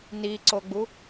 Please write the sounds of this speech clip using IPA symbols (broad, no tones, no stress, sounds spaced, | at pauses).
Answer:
n i ǀ o ɡ͡b u